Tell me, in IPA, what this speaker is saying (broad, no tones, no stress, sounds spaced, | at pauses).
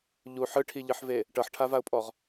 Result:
ʎ u ħ ɯ ʈʰ i ʎ ɯ ħ v e | ʈ ɤ ħ ʈʰ a v a ʊ̯ pʼ ɔ ʁ